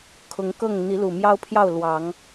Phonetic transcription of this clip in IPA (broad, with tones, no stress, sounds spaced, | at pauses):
kʰ ʊ˨˦ ŋ k ɤ˥˨ ŋ n̪ i˨˦ l u˨˩ m j ɑ˦ ʊ̯ pʰ j ɑ˥˨ ʊ̯ l w ɑ˨˦ ŋ